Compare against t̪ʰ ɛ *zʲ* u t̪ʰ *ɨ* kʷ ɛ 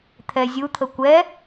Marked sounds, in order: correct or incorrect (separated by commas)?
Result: correct, incorrect